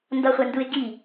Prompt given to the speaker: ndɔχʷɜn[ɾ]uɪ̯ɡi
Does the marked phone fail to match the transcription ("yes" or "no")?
yes